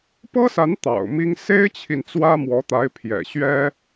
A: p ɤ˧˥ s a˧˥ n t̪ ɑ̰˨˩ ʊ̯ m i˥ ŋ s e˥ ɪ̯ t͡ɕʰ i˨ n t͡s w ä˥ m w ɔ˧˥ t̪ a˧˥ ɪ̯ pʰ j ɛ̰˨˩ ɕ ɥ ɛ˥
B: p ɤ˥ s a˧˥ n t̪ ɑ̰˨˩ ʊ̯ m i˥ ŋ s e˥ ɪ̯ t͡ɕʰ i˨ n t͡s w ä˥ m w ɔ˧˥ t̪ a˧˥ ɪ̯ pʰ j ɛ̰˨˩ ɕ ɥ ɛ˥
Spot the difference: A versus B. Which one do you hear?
B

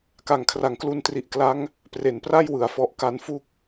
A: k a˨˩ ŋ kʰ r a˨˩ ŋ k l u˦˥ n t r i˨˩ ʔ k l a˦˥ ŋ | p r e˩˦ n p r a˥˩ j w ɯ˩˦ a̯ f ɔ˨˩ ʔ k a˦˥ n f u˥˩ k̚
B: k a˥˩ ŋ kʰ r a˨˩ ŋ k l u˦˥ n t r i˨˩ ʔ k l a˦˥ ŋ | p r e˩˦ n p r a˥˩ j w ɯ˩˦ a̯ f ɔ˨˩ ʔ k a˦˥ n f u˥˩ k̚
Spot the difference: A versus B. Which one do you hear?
A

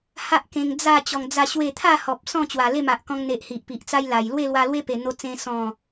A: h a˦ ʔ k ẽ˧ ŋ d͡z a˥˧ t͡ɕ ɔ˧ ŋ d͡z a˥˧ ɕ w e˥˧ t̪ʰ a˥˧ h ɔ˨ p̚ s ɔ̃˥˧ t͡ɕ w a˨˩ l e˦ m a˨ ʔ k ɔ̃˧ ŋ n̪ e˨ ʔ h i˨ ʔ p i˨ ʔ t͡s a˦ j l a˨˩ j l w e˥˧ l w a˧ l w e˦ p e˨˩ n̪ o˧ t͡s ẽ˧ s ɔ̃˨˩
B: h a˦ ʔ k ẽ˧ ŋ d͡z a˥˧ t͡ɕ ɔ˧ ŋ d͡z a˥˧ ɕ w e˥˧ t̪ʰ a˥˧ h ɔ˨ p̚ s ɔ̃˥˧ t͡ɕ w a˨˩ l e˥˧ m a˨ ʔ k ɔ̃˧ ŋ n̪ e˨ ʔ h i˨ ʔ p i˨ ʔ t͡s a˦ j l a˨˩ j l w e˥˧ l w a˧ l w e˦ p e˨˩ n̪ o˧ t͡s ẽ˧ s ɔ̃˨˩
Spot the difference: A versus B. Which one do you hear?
B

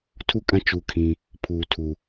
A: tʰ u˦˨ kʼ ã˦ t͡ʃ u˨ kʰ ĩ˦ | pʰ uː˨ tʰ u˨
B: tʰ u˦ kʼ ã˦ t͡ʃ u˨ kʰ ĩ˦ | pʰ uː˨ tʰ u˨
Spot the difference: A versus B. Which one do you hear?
A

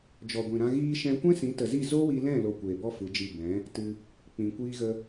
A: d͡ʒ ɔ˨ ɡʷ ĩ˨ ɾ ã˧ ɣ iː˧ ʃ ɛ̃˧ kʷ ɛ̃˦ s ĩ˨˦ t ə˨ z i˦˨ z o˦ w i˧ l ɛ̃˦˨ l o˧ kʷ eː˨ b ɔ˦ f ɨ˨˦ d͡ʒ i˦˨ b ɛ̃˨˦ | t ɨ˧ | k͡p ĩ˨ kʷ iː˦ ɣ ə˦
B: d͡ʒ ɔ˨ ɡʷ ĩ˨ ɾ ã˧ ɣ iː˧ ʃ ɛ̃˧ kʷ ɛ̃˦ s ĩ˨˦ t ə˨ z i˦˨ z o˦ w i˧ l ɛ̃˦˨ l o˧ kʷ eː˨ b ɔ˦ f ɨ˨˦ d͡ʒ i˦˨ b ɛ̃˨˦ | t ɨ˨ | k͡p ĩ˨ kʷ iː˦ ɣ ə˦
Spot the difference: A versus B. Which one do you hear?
A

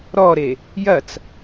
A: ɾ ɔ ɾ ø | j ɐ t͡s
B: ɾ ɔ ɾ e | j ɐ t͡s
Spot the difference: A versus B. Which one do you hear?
B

